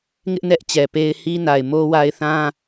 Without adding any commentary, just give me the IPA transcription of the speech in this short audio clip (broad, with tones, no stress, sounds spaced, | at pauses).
ŋ ɪ˦ ʔ n ɛ˦ ʔ t͡ɕ ɛ˨ p e˦ ɪ̯ h i˦ n a˨ ɪ̯ m o˦ w a˦ ɪ̯ θ ã˦